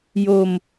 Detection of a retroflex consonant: absent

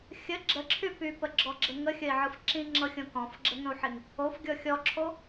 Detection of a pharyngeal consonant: present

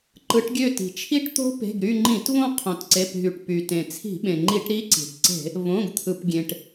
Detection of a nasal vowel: present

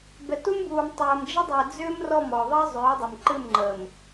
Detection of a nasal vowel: absent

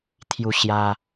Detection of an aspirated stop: present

